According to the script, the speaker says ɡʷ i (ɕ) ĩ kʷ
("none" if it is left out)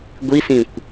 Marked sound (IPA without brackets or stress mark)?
s